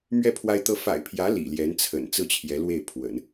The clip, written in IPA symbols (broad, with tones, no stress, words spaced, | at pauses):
mɥɛ˥˩pʰwa˥ɪ̯t̪ɤ˥ fa̰˨˩ɪ̯pʰjä˧˥ lḭ˨˩ljɛ˧˥nt͡sʰə̰˨˩n t͡sɹ̩˥˩t͡ɕʰjɛ˧˥lwe˥˩ɪ̯pʰwə̰˨˩˦n